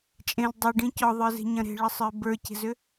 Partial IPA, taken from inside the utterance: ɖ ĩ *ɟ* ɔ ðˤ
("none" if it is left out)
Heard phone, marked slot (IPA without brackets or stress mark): c